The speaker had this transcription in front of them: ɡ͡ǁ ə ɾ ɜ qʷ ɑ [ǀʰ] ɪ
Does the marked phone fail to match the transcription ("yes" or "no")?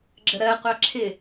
yes